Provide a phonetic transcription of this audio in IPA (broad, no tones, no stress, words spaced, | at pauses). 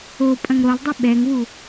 o pʼɐ̃ŋɾolˠdˤi ɓɛŋwu